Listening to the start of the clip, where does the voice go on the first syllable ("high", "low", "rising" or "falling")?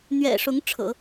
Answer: low